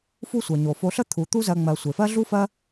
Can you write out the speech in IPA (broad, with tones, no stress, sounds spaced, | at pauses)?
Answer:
f u˦ sʷ ɜ˩ ɲ o˩ f o˨ ɬ ə˥ t̪ʰ u˩ t̪ u˦ z ɜ˨ ŋ͡m ɜ˩ sʷ e˩ f ɜ˥ ɮ u˥ f ɜ˥